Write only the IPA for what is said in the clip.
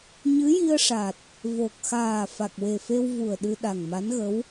ɲ ɨ˧˥ j i˧ ə̯ ʂ a˨˩ t̚ | v o˨˩ k̚ x aː˨˩ f a˨˩ k̚ w e˨˩ f e˧ w v u˨˩ ə̯ ɗ ɨ˧ ɗ a˨˩ ŋ m a˧˥ n ɣ ə˧˥ w

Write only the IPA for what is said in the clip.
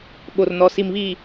ɓ o˨ r n ɔ˨ s i˨ m β i˨

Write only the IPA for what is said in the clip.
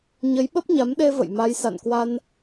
ɲ ə˨˦ j ɓ ə˦˥ p̚ ɲ a˨˦ m ɗ e˧ v ə̰˧˨ j m a˨˦ j s a̰˧˨ n k w a˧ n

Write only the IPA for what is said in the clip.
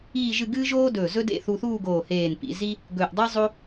iː˥˧ ʒ ɨ˥˧ ɡ ɨː˥ ʒ oː˥ d ɵː˧˩ z ɵ˥ d ḛ˥˧ θ u˧ θ uː˥˧ ɡ oː˧˩ h eː˧˩ n p ḭ˩˧ z i˥ | ɡ ɵː˧˩ ʔ dˤ i˥ zˤ o˥

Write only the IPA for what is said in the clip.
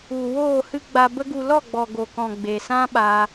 u˨ w oː˦˨ h ɨ˦ ɡ͡b a˧ b ə˦ ɡ u˧ l ɔ˦˨ ɡ͡b ɔ˨ ɡ o˨ k ɔ̃˨ ɡ͡b e˨ s ã˦ ɓ a˧

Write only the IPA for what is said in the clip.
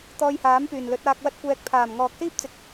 t̪ ɔː˧ j h aː˨˥ m p yː˨˩ n l ɵ˨˥ t̚ aː˧ k̚ w ɐ˥ t̚ kʷ ɛː˧ k̚ pʰ aː˨˩ m ŋ ɔː˨ k̚ s iː˥ p̚ t͡s ɪ˨ k̚

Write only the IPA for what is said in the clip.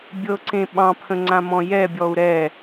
bʲ ɤ ǀ ẽ ɓ ɑ̃ pʰ ə̃ ŋ͡ǀ ã m ɔ̃ j ɛ bʲ ɔ u̯ ɾ ɛ

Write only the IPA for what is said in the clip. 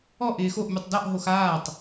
ɔ ʔ ɪː x o ʔ mʲ u tˤ d ɔ ʔ ɦ o x aː tˤ

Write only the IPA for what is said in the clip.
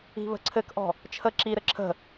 i̤ β ə̤ ǀʰ ɘ k ʔ ɔ̤ | t͡ʃʰ ə ǁ i ɾ ɘ ǁʰ ə̤

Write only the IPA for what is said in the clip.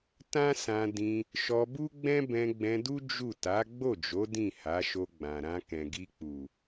t ã˦ s ã˧ d ĩ˧ | ʃ ɔ˧ b u˦ ɡ͡b ɛ̃˦ b ɛ̃˧ ɡ͡b ɛ̃˧ d u˦ d͡ʒ u˦˨ t a˨˦ ɡ͡b o˦˨ d͡ʒ o˨˦ d ĩ˦˨ h a˨˦ ʃ o˧ ɡ͡b ã˨ ɾ ã˧ k ɛ̃˨ ɡ i˧ k͡p u˨

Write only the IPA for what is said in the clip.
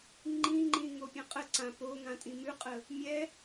ŋ͡ǃ ĩ ŋ͡ǃ ĩ ŋ o pʲ ə̃ qʼ ə ǀ ã p o ŋ ã tʼ ĩ m ʉ qʼ ə | mʲ ɛ

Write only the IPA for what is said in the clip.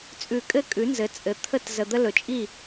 t͡sʼ ʉ˨˩˦ kʼ ɘ˦ kʼ ʉ˩˥ n z ɘ˩˥ t͡sʼ ɘ˩˥ t̪ʰ ə˥˨ t z ə˨ d̪ ə˦ l ɵ˨ t͡ʃʼ i˥˨

